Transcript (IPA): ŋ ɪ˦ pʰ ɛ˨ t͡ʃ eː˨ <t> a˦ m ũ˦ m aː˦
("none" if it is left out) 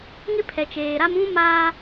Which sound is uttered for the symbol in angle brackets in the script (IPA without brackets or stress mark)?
ɾ